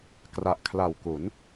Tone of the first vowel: low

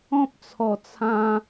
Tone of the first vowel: high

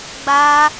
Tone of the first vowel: high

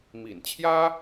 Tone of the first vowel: low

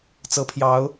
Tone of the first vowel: rising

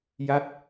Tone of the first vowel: falling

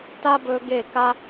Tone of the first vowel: high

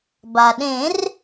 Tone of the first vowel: low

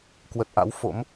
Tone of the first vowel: low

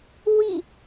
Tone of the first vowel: falling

